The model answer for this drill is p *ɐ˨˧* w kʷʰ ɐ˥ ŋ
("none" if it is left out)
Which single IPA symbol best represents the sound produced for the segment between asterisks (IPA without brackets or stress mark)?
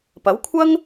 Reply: ɐ˨˥